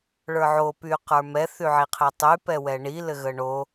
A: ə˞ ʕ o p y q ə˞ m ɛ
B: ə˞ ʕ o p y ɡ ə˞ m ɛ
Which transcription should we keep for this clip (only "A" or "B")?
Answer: A